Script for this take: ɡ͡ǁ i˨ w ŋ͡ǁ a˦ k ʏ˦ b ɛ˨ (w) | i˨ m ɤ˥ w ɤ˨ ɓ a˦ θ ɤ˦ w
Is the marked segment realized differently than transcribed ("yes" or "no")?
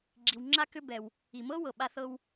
no